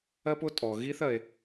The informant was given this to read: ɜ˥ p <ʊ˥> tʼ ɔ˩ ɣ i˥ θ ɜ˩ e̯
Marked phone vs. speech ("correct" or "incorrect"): correct